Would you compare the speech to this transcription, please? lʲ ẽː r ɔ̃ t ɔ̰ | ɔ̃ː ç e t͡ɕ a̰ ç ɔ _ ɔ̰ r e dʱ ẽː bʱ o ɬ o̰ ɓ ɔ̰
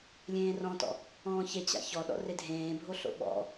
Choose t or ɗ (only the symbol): ɗ